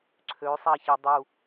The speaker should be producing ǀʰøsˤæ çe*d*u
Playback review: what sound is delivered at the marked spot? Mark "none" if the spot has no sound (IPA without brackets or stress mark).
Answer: dˤ